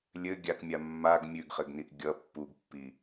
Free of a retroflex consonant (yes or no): yes